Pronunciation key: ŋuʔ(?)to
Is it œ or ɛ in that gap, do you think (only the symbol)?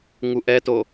ɛ